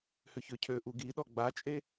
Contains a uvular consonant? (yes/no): no